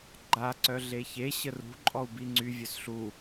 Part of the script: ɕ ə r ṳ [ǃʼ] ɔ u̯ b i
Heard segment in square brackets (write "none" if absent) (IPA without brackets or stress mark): ǃʼ